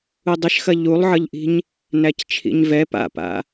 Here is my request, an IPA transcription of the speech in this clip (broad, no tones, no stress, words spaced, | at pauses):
udˤəʃxɐ ʎulˠʕʌʎʔi̤ɲ | næct͡ʃʰḭɲvɛ pa̰pa̰